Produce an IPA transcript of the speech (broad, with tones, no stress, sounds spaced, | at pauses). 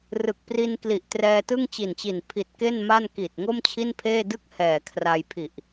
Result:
r ɯ˨˩ k̚ p r i˧ n k l i˨˩ ʔ t r ɛː˧ t ɯ˥˩ ŋ t͡ɕ i˨˩ n t͡ɕ i˨˩ n pʰ i˨˩ t̚ k e˥˩ n m a˥˩ n k i˨˩ t̚ ŋ o˥˩ m t͡ɕʰ i˥˩ n pʰ eː˥˩ d ɯ˥˩ k̚ h ɛː˨˩ kʰ r a˧ j pʰ i˨˩ ʔ